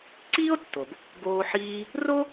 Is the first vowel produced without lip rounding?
yes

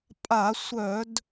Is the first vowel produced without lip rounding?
yes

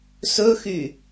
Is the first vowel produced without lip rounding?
no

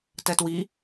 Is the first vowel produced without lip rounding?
yes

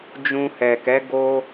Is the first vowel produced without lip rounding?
no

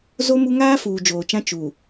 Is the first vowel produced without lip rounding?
no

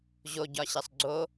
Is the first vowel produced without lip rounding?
no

